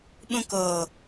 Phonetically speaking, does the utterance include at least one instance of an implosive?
yes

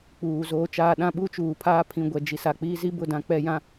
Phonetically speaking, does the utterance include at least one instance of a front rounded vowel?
no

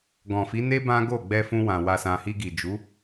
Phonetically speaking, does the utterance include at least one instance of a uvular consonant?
no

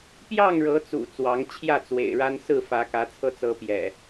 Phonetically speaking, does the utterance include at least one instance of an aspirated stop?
yes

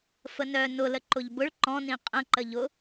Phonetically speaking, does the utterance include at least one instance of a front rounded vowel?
yes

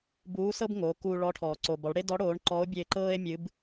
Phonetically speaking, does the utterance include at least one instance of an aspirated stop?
yes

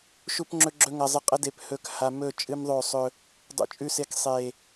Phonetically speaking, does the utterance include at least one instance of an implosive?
no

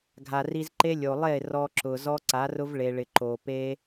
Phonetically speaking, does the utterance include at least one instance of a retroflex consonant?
yes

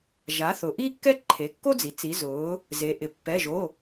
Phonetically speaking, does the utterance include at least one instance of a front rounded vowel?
no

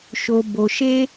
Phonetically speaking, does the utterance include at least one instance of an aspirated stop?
no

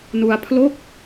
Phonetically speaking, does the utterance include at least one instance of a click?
no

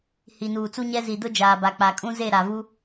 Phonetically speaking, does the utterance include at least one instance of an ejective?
yes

